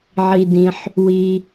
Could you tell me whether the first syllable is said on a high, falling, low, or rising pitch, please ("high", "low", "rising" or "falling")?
low